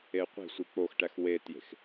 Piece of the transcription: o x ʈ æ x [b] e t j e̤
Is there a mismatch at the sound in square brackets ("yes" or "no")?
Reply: yes